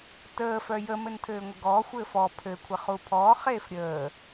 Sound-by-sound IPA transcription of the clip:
t əː f œ j ə m ɘ n tʰ ɘː ŋʷ ɘ ɡ ɔː xʷ ɘː f ɔ pʰ ɘ kʷʰ ɘ χ u pʰ ɔː χ eː f ɾʲ əː

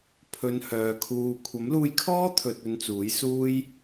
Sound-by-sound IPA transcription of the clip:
pʰ ɵ˧ n h œː˨˧ kʰ uː˧ kʷʰ ɐ˨˥ m l uː˧ j kʰ ɔː˥ t̪ʰ ɵ˧ t̚ ɵ˧ n t͡s uː˨˥ j s uː˧ j

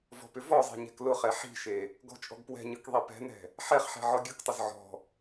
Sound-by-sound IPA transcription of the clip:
v ɔ̤ p ʏ v ɔ zˤ e̤ ɲ ɛ̤ k l ʊ χ ɛ ħ i̤ ʃ e | ɡ ɔ̤ t͡ʃʼ ɔ̤ ɡ p w ɛ̤ ɲ ɯ k ðˤ i p ɛ̤ n ɛ̤ | ħ ɛ χ ħ ɛ̤ ʕ ɔ ɡʲ ɯ k tˤ ʊ z ʕ ɔ̤

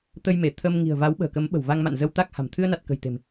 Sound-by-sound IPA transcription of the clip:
t̪ ə˧ j m e˧˩ t̪ʰ ə˧ m ŋ i̤˨˩ ə̯ v a˨˦ w ɓ ə̤ː˨˩ k ə˨˦ m ɓ ə̤˨˩ w v a˧ ŋ m a̰˧˨ n z ə˧ w t̪ a˦˥ k̚ h a̤˨˩ m t̪ʰ ɨ˧ ə̯ n a˨˩ t̚ k ə̤˨˩ j t̪ e̤˨˩ m

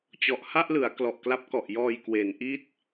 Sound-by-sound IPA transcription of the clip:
t͡ɕ ɔ˨˩ ʔ h a˥˩ ʔ l ɯ˩˦ a̯ k l ɔ˨˩ ʔ k l a˦˥ p̚ k ɔ˨˩ ʔ j ɔː˧ j k w e˩˦ n ʔ i˥˩ t̚

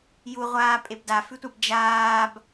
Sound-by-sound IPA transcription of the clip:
j u ʁʷ aː pʼ e b d a f ʉ tʷ a b d͡ʒ aː b

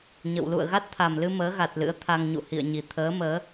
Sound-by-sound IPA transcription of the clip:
ɲ ə̰˧˨ w l ṵ˧˨ ə̯ ɣ a˦˥ t̚ t̪ʰ a˨˩ m l ɨ˧ m əː˨˦ ɣ a˨˩ t̚ l ɨ̰˧˥ ə̯ t̪ʰ a˧ ŋ ɲ ṵ˧˨ h ḭ˧˨ ə̯ ɲ i˨˩ t̪ʰ əː˨˦ m əː˨˦

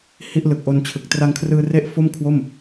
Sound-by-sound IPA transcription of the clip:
h i˥˩ ʔ l ɯ˨˩ k̚ ʔ o˧ n t͡ɕʰ ɯ˨˩ k̚ t r a˧ ŋ kʰ r ɯː˧ r e˦˥ ʔ f o˥˩ m kʰ w o˥˩ m

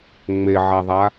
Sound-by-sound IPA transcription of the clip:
ŋ͡m e ʕ a ðˤ a

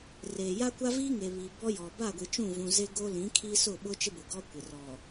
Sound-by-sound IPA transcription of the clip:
r eː˨ j a˦ kʷ a˦ v iː˦ ŋ e˨ β i˨ b ɔ˦ j ɔ˨ b a˦˨ ɡʷ i˨ t͡ʃ ũ˦˨ v ũ˨ z e˦ ɡ o˦ l ĩ˨˦ kʰ i˦ s ʊ˦˨ ɓ ʊ˦ t͡ʃ ɪ˦ b ʊ˨ ɡ ɔ˦ kʷ ɪ˨ r ɔ˨

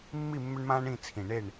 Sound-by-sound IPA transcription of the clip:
mː i˥˨ mː ʏ˦ ɳ m ãː˦ ɳ ĩ˥˨ t͡sʰ ĩ˨˩ ɳ e˥˨ ɳ

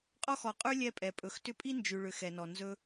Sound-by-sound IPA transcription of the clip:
qʼ ɔ˥ x ɔ˨ qʼ ʉ˥ lʲ ɛ˦ pʼ ɛ˩ pʼ ɵ˩ x t ʏ˦ pʼ i˥ n d͡ʒ ʉ˨ ɭ ʏ˨ x ɛ˩ n ɔ˩ n z ɵ˦

